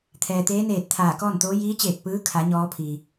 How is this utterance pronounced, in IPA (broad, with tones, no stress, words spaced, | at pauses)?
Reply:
t̪ʰɛː˩t̪eː˧˥neː˧˩t̚ t̪ʰaː˧˩ kɔː˥˨nt̪oː˧˥ jiː˧˥t͡ɕeː˧˩k̚pɯː˧˥kʰa˩˧ ɲɔː˧˥pʰi˩